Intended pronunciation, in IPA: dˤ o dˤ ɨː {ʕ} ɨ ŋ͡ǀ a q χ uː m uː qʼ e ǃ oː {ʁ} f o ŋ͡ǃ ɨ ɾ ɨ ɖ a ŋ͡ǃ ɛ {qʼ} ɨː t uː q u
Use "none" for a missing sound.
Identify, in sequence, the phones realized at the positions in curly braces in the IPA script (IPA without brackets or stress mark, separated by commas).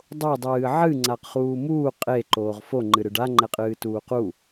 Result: ʕ, ʁ, qʼ